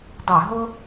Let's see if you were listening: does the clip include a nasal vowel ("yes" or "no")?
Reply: no